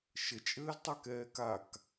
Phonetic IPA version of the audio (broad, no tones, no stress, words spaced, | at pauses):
ʃət͡ʃʼɘːztˤɛkɛː kak